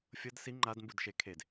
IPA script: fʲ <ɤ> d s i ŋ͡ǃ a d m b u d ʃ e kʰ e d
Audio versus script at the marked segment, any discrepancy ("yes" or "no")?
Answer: no